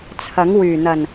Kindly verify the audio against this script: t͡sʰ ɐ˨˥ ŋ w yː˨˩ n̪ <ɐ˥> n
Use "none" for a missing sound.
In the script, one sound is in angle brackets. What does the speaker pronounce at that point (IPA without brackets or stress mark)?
ɐ˨˩